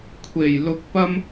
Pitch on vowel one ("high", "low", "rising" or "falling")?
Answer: low